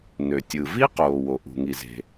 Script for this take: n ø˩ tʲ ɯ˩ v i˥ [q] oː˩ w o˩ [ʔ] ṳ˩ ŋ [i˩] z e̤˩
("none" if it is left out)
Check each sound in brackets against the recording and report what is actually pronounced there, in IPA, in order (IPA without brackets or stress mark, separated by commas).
q, ʔ, i˩